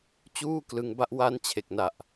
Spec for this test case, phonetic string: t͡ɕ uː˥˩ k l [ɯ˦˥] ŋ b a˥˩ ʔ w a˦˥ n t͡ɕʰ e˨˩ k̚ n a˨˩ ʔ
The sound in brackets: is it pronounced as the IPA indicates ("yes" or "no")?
no